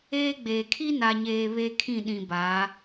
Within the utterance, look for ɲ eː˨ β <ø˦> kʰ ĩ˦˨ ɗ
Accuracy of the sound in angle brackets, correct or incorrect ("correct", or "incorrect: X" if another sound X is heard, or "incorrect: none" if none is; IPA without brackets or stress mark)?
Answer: incorrect: e˦